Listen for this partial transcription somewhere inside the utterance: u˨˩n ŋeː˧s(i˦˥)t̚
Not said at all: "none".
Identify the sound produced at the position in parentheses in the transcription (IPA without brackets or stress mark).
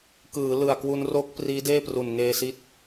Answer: i˦˥